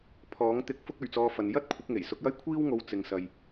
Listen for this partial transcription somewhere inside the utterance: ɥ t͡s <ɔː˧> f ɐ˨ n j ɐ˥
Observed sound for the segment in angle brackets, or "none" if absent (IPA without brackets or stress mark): ɔː˧